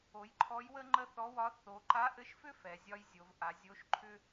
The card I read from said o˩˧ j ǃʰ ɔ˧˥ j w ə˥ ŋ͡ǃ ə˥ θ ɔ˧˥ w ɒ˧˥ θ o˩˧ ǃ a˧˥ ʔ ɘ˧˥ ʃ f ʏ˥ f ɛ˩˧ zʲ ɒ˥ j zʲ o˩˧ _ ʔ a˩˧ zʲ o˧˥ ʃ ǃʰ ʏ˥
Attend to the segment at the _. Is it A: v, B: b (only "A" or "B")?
A